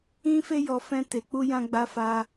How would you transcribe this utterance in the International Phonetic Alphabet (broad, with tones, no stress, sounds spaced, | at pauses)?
ĩ˦ f e˦ j ɔ˧ f ɛ̃˦ t e˧ k͡p u˦ j ã˧ ɡ͡b a˧ f a˧